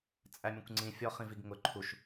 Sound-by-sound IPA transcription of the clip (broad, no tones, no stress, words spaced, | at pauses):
t͡sʼæmʲə̃kʷŋ͡ǀĩ fʲɔχĩviɡŋʊ ǃʰuʃ